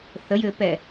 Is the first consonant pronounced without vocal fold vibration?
yes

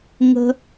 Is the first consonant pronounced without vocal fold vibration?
no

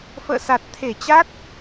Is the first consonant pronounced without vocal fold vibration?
yes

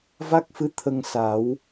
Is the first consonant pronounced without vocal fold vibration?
no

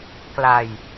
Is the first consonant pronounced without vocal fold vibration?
yes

